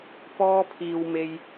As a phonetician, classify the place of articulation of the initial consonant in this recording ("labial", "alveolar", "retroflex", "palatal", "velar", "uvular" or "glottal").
labial